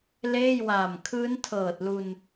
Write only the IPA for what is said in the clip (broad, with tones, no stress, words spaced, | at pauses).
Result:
leː˥˩jwaː˨˩m kʰɯː˦˥ntʰɤː˨˩t̚lu˧n